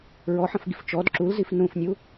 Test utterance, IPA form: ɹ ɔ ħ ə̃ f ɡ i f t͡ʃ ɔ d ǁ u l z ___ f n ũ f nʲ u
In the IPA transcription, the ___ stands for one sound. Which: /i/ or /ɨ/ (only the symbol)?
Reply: i